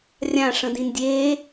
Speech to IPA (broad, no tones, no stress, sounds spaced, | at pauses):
rʲ ã ʂ ə̃ d ĩ n dʲ e